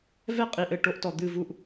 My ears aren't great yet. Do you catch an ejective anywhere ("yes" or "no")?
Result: yes